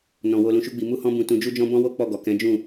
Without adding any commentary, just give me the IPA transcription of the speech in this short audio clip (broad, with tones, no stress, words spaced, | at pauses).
nɔ̃˨ wo˧lũ˧ʃu˦ɡ͡bi˧ mu˦hɔ̃˦bũ˧ tũ˧d͡ʒu˦d͡ʒɔ̃˦ bɔ̃˦wo˦ k͡pɔ˦˨ɡɔ˨ kɛ̃˨˦d͡ʒũ˦˨